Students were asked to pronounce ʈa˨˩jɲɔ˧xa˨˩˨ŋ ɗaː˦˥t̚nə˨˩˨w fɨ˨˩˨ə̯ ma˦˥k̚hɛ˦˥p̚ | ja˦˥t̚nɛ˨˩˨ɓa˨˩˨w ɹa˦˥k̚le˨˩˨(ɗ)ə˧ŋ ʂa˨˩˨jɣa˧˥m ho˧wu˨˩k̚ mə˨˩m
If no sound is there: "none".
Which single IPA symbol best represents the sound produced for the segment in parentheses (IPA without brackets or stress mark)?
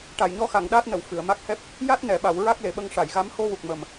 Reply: ɓ